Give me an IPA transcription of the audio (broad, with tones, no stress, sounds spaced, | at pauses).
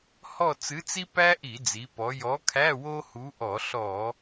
h ɔ˦˨ t͡s ɨ˨˥ t͡s i˥ p æ˥ ʔ i˧˩˧ d͡z i˩˧ p ɔ˩˧ j ɔ˨˥ kʰ æ˧˥˧ w o˥ h u˨˥ ʔ ɔ˧˩˧ ɬ ɔ˧˩˧